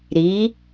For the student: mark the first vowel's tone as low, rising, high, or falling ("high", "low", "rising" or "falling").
rising